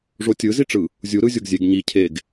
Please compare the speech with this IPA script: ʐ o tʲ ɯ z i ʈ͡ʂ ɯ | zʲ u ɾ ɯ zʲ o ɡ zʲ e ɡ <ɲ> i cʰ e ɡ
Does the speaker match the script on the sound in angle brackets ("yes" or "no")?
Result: yes